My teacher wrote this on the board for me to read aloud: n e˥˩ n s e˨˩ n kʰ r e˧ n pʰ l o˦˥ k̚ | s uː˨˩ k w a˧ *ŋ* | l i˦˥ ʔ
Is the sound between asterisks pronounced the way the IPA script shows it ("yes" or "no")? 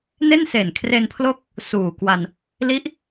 no